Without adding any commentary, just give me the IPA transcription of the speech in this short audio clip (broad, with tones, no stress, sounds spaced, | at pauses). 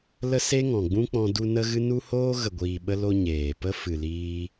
l ə˦ s e˦ ŋ ɔ̃˨ ɡ͡b ũ˦ k͡p ɔ̃˧ d u˧ n ə˦ ɣ ɨ˦ n u˦ h oː˦ ɣ ə˨ ɡʷ iː˨ ɓ ə˧ l o˧ ɲ eː˨ p ə˦ f ɨ˨ l iː˧